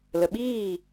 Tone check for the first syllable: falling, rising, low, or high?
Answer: low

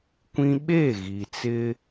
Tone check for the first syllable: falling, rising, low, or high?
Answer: high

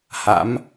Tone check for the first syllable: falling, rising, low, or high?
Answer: rising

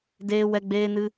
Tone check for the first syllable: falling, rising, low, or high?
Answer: high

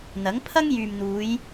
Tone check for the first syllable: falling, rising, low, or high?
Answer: rising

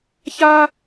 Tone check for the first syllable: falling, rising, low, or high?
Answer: high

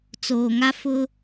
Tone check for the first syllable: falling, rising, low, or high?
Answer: low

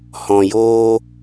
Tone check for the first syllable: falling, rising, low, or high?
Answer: low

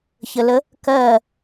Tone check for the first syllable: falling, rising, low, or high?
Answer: low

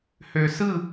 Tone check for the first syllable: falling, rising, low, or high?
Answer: low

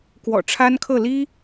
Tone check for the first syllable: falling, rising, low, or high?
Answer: low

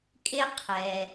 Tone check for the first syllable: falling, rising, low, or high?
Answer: high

